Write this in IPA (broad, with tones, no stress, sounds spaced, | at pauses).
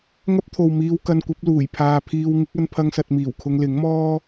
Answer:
ŋ ɐ˥ p̚ t̪ʰ o˨ w m iː˧ w k ɐ˧ n kʷ ɐ˨˥ p̚ l uː˨˩ j pʰ aː˧ pʰ iː˧ w ŋ ɪ˨˥ k̚ ɐ˥ n pʰ ɐ˥ ŋ s ɐ˧ t̚ m iː˨˩ w kʰ ʊ˧ ŋ l ɪ˨˥ ŋ m ɔː˥